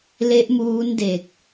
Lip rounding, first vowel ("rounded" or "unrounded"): unrounded